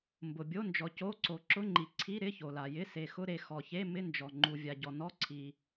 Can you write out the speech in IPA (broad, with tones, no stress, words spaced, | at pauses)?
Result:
mbʊ˩bʲo˧˥˧nd͡ʒɔ˩ co˧˥˧ǀo˩ ǁʊ˧˥˧ŋ͡ǃi˩ ǀʰi˧˥˧ ɾɪ˧˥˧ço˩la˩jɪ˧˥˧ se˩xʊ˧˥˧ɾe˩ xɔ˩çe˧˥˧ mɪ˧˥˧nd͡ʒɔ˩ ŋ͡ǃu˩vʲa˩ɟɔ˩ nɔ˧˥˧ǀʰi˩